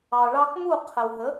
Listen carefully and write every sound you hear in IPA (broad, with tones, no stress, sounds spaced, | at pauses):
ɑ˩ ɭ ɑ˧ k m u˥˩ qʰ ə˩ w ɦ ə˩˥